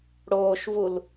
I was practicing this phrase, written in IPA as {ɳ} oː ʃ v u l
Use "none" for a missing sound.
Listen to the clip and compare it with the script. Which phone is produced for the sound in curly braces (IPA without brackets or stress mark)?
ɽ